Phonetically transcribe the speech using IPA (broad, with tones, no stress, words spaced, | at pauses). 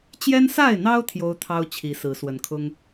t͡ɕjɛ˦nsa˥˨ɪ̯n̪ɑ˦ʊ̯ t̪ʰjo˦ʊ̯t̪ʰɑ˦ʊ̯ t͡ɕʰi˨˦sɹ̩˨˦swə˨˦nkʰʊ˦ŋ